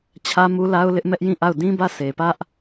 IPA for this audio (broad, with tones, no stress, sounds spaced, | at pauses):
t͡ɕʰ ä˦ m u˦ l a˦ ʊ̯ l ɪ˦ ʔ m ɛ˦ ʔ j ĩ˦˨ ʔ a˦˨ ʊ̯ d ĩ˦ b ä˦˨ sʰ e˨ p ä˦ ʔ